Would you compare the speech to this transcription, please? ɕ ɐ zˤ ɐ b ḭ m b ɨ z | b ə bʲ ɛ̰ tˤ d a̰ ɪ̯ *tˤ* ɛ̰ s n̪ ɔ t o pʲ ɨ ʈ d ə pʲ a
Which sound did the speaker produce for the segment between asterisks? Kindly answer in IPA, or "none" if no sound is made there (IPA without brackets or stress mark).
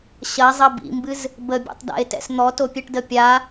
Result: t